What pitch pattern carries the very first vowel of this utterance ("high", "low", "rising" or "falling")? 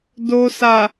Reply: low